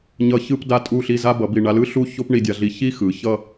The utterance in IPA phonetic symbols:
ɲ ʌ˧˩ ç ɯ˥˧ p d a˧ tʼ u˧˩ ɬ i˧˩ z a˥ b ʌ˩˧ b i˧˩ ɳ a˧ l ɯ˥ ɬ u˥˧ ç o˥ p ɳ i˧ dʲ a˧ ɮ i˧ ç i˥ x ɯ˩˧ ç ʌ˥˧

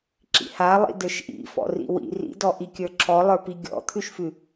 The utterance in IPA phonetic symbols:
ǁ ḭ h a lˠ ḭ d ə˞ ʃ ʔ ḭ f ɔ̰ r ḭ w ḭ r ḭ d ɔ ʔ i kʲ ə˞ ǁʰ ɔ lˠ ə˞ p i ɡʲ ɔ̰ t̪ʰ ʉ ʃ f ʉ

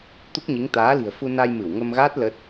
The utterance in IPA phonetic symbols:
t̪ u˦˥ k̚ ɲ i˨˦ ŋ t̪ aː˨˦ l i̤˨˩ ə̯ f u˧ n a˧ j m ɨ˧˩ w ŋ ə˧ m ɣ aː˦˥ t̚ l ə˦˥ t̚

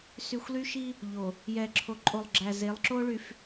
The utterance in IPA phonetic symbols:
s y˨ xʷ l y˦ ʃ i˦ | ʎ o˨ | j ɛː˨ ǁʰ o˨ ǃʼ o˨ lˠ ɡ͡ǁ æ˨ z e˨˦ lˠ ǁ o˦ ɭ y˨ f

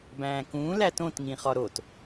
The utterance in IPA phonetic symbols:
b æ̃ː k ũː l æ t õ t ŋ ĩ χ ɒ ɾ o t

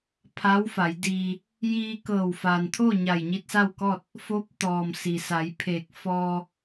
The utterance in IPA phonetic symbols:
pʰ a˧˥ w f a˩˧ j d iː˧ | j iː˧ k ɤː˧˩ w f a˩ n t̪ʰ o˥˨ ɲ a˧˩ j ɲ i˧ t̚ s a˥˨ w k ɔː˥˨ t̚ | f o˧˥ p̚ t̪ ɔː˩ m s i˩ s a˩˧ j pʰ eː˧˩ k̚ f ɔː˧

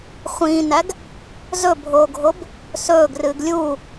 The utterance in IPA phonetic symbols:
χʷ ĩː n æ ɡ | z ɵ bʱ oː ɡʱ o b | s ɵː ɡ r ɨː ɡ lʲ u

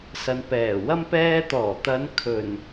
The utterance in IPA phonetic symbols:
s ɐ˨˧ n p ɛː˨˩ w ɐ˥ m p ɛː˧ t̪ ɔː˨˩ t̪ ɐ˨˧ n kʰ ɵ˨˩ n

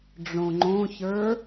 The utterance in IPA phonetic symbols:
ɖ͡ʐ õ ŋ͡ǃ õ ç ə˞

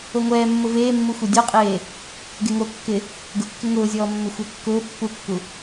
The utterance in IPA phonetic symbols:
o ŋʷ ɛː mː ʊ v eː mː u xʷ ɛ dʲ ɔ qʼ eː | ɡ e ŋ o kː ɪ | ɡ ʊ kː ɪ ŋ ʊː zʲ ɔː mː ɪ xʷ ɛ kː ʊː pː u kː u

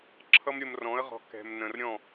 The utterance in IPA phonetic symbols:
ǁʰ ʌ˦ m ɾʲ ə˧ m r ɔ̃˨˦ ə̯ ʁ ɔ̤˧ k ɛ̤˨ m n ə̃˨ r ɾʲ ɔ̃˦˨

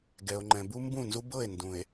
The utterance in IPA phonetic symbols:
ɡ ɛ˨ o̯ ŋ͡ǃ ɛ̃˨ b u˦ m b ũ˦˨ n z u˦ b ɤ˦˨ e̯ n d ũ˨ e̯

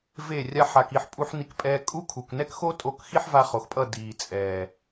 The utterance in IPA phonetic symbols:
v e˦˨ rʲ a˧ ħ a˨ k i˧ ħ pʼ u˧ ħ n i˧ k pʼ ɛː˧ kʼ u˦ kʰ u˨ k n ɛ˦ k x o˦ tʼ o˧ k x i˦ ħ v a˧ χ o˨ x pʼ ʌ˦˨ d iː˨ t͡sʼ ɛː˨

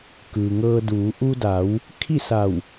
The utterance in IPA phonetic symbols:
k ɯː˩ ŋ ɤː˧ d uː˩˧ ʔ u˧ d a˩˧ w | kʰ i˥˨ s a˧˩ w

